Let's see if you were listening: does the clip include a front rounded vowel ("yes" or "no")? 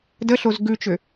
yes